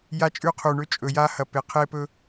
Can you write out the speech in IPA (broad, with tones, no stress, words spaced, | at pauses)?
ja˧t͡ʃʼʉ˧qʰu˨ɳɵ˧ t͡ʃʼɵ˨ja˧hɐ˨pe˨ qʰe˧pɵ˧